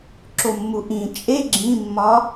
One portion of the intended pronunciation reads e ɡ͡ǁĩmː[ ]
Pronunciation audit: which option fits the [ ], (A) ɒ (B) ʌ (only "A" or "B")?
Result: A